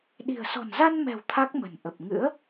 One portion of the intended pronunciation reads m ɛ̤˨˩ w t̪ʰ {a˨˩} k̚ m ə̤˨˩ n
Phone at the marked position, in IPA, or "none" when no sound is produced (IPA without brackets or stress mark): a˦˥